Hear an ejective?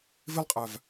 yes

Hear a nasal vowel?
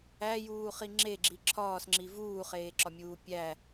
no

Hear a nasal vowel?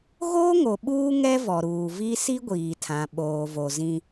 yes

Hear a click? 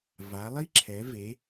yes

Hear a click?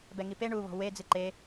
yes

